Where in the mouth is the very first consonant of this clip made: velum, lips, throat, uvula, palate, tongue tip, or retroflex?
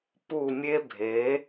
lips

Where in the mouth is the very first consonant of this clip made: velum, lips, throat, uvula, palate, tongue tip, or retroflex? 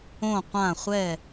uvula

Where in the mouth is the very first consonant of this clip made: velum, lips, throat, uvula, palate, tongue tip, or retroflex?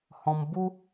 throat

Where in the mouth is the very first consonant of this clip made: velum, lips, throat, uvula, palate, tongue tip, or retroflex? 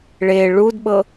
retroflex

